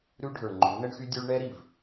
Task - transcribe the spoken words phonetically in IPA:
ɾ ʉ˦ ɖʱ ə˞˨ ŋ͡ǃ ʉ˨˦ n ə˦ ɳ x y˦ dʲ ʉ˦ ɭ ɳ ɛ˦ ɾ i˨ v

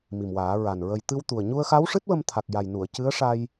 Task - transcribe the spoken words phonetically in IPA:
m i˨˩ m w aː˨˩˦ ɹ a˨˩ n ɹ ə˨˩ j t̪ ɨ˧ w t̪ u˨˩ ə̯ ɲ u˧ ə̯ x a˧˥ w ʂ ɨ˦˥ t̚ w ə˧ m t̪ʰ a˨˩ k̚ j a˨˩ j n u˨˩˨ ə̯ c ɨ˧˥ ə̯ ʂ a˧ j

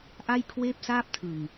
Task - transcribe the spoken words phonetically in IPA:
ʔ a˥˩ j kʰ w eː˥˩ p̚ s aː˥˩ p̚ tʰ ɯ˨˩ ŋ

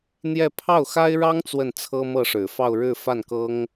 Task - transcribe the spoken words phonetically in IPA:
n̪ j ɛ˥˧ pʰ ɑ˥˩ ʊ̯ x a˥ ɪ̯ ɻ ɑ˥ ŋ t͡s w ə˥˩ n t͡sʰ ɤ˥ m ɤ˥˩ ʂ ɻ̩˨˩ f ɑ˥˧ ʊ̯ ɻ ɻ̩˥˧ f a˥˩ n k ɤ˥ ŋ

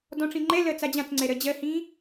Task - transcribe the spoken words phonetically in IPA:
d ɔ̃ ʈ͡ʂ ĩ ŋ͡ǃ ɛ l ɜ t͡s a d͡ʑ ã t͡s ŋ͡ǀ ɛ ɾ ɜ d͡ʑ ɜ h ĩː

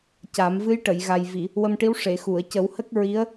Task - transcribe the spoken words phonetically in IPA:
c a˨˩˦ m v ɨ˧˥ j ʈ ə˨˩˨ j ɣ a˨˩ j v i˨˩˨ | w ə˧ m ʈ i˧˥ w ʂ e˨˩˨ x u˨˩˨ ə̯ c ə˨˩˦ w h ə˦˥ k̚ ɹ i˧˥ ə̯

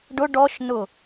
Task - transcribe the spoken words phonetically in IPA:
ɖ ʊ ɖ ɔ ʃ n ʊ

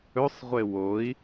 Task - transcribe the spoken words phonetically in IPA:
ɵ sˤ ʁʷ e w o i̯

